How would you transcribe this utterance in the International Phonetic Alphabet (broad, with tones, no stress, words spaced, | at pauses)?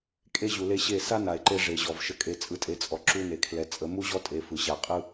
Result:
kʼe˦ʑu˨le˦ ɕe˦˨ sa˦ na˨e̯ǃe˦ ʐe˨ʑɔ˨v ʃə˨kʼe˨ t͡sʼɯ˨tʼe˨t͡sʼɔ˨ ǁu˦ne˨ kʰlɛ˨˦t͡sʼə˨˦ mu˦ʑɔ˦tʼe˨ fɯ˨ɕa˨ qʼɯ˦